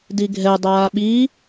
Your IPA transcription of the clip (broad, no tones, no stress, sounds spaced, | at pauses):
d i ɡʱ ɛ dˤ aː ɓ i